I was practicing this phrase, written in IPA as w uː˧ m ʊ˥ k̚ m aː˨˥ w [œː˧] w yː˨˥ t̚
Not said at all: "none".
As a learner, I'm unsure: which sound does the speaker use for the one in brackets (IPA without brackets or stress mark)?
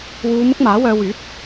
œː˧